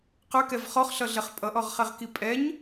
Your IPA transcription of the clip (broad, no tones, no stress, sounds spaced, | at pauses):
q ə˞ k ɛ v χ ɔ χ ɬ ʌ ɮ ɛ χ pʼ ʌ ʔ ɔ ʁ χ ɛ ʁ k i pʼ ɛ ɲ